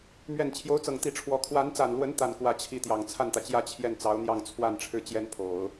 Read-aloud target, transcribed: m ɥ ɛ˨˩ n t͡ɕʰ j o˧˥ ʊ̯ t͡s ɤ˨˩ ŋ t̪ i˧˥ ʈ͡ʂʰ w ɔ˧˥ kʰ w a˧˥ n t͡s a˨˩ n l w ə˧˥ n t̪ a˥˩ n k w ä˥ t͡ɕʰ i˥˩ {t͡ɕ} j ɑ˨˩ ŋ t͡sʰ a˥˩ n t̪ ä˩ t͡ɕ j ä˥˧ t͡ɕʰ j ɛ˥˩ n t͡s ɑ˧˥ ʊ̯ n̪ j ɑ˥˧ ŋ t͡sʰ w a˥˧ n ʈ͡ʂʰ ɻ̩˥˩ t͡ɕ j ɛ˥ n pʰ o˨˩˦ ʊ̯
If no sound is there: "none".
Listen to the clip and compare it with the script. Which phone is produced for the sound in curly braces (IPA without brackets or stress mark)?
t̪